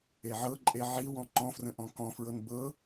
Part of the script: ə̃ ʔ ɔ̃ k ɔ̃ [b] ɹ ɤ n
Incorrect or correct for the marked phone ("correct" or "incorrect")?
incorrect